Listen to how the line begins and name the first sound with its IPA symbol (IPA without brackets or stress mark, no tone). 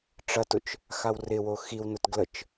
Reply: ʈ͡ʂ